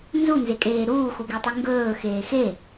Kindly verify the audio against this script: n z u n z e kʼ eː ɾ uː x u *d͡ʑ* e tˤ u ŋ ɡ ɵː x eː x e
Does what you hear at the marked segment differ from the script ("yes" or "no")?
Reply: yes